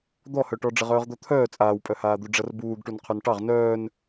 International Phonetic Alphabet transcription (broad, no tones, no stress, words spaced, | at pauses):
d̪ɔhœʈɔ ɖ͡ʐɘʁœːʁd̪ɔt̪ʰœː t͡sʼaːwpʼœhaːd̪u ɖ͡ʐɐrbuːɡʈun qʰœnʈɑʁ nœːn